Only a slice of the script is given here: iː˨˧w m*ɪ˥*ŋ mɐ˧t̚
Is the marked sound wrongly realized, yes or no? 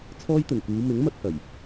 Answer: yes